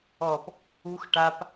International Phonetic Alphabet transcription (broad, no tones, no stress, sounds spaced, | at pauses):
ɔ p | u x ʈ a p